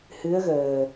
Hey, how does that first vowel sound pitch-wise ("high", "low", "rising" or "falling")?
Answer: rising